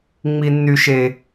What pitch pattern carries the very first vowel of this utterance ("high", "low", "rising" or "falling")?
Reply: high